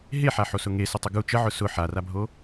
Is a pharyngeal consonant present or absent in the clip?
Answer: present